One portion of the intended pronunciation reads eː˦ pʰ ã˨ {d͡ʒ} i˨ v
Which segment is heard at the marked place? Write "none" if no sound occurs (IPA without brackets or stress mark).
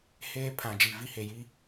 d͡ʒ